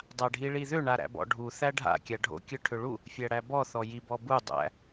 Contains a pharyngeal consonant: no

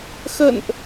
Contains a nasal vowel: no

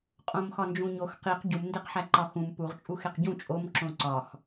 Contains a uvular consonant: yes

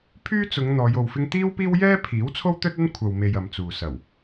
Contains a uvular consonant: no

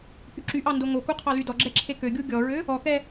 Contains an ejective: no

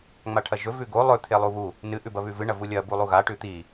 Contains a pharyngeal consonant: no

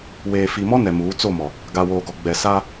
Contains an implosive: no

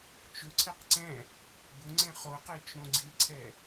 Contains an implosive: no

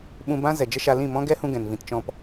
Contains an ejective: no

